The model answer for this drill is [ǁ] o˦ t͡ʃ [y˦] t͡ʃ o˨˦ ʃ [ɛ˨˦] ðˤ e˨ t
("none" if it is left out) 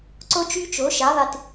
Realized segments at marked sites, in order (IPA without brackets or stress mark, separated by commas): ǀ, y˦, ɛ˨˦